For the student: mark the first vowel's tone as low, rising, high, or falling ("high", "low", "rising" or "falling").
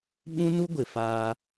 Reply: high